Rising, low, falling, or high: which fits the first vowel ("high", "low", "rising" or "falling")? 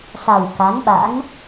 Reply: low